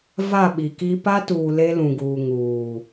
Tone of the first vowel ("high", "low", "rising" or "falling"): falling